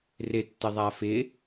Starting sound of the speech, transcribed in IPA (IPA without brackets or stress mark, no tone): r